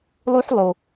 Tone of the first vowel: high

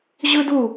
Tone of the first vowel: high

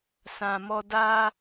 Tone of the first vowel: low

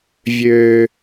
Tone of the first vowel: low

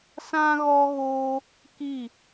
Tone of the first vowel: high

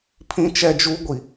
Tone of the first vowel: high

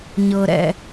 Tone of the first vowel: low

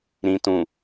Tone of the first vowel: low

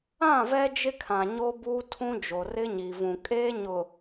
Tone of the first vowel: falling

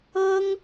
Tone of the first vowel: high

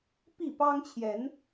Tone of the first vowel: falling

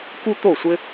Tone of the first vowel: high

